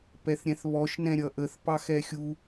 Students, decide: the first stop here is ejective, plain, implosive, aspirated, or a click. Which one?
plain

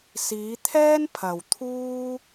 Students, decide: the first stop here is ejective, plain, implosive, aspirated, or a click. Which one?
aspirated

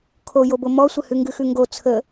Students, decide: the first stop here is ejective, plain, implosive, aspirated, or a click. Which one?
aspirated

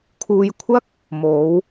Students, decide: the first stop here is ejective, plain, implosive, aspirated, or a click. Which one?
aspirated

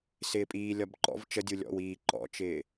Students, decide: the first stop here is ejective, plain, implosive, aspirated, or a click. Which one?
ejective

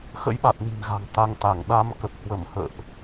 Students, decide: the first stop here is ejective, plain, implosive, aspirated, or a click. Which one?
implosive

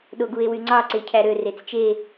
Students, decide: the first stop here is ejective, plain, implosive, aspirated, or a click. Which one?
implosive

